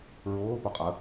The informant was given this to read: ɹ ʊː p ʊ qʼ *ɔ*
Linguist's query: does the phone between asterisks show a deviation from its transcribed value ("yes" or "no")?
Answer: yes